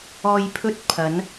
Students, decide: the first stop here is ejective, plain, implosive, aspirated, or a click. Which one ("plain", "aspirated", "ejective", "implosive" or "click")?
aspirated